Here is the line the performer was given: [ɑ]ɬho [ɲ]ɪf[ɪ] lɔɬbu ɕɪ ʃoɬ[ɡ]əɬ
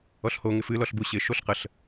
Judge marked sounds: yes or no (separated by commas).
no, no, no, no